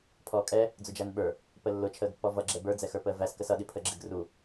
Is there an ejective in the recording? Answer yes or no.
yes